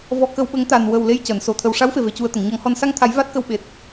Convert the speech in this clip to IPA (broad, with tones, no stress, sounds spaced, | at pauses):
v ɔ˧ k ə˧ w ɓ ə˧˥ ŋ t̪ a˨˩ n w ə˨˩ w l e˧ j c əː˨˩˨ n s o˨˩ t̪ʰ ə˨˩ w ʂ a˧˥ w f e˨˩ v e˨˩ c u˧ ə̯ t̪ ə˨˩˨ ŋ ɲ ɔ˨˩˦ ŋ h ɔ˧ n s a˧ ŋ t̪ʰ a˨˩˦ j v a˦˥ t̚ k ə˧ w ɓ e˨˩ t̚